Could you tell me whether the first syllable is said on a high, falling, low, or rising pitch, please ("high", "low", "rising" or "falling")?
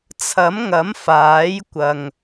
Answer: rising